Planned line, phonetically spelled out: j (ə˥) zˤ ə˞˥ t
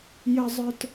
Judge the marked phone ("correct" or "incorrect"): correct